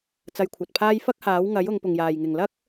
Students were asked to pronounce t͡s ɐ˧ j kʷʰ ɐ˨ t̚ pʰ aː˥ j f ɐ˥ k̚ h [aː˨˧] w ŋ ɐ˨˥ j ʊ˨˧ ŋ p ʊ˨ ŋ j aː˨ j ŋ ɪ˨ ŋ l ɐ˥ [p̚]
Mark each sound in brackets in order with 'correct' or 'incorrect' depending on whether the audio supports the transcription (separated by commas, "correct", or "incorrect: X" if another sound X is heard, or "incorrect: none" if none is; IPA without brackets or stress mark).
incorrect: aː˨˥, incorrect: k̚